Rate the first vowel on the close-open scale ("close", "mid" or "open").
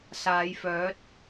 open